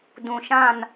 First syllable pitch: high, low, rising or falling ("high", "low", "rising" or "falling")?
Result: low